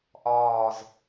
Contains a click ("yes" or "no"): no